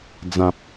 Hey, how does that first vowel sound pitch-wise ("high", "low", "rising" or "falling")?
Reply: low